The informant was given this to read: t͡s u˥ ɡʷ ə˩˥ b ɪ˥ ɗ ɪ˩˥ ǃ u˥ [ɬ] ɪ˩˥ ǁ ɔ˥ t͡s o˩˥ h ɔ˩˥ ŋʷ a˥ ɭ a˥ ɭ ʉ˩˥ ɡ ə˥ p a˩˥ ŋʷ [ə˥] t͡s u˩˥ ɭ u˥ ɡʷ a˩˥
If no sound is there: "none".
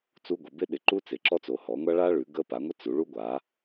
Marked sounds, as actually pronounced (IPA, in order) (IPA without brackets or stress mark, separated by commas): t͡s, ə˥